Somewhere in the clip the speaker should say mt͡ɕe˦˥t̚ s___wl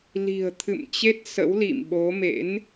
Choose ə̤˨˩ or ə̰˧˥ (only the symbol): ə̰˧˥